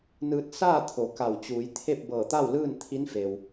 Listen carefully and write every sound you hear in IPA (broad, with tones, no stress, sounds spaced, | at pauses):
n ɯː˧ t̚ s aː˥˨ t̪ʰ o˩˧ k a˧˩ w t͡ɕ uː˩˧ j t̪ʰ e˥˨ p̚ b ɤː˧˩ t̪ a˥˨ w l ɯː˥˨ n t̪ʰ i˧˥ n f e˩ w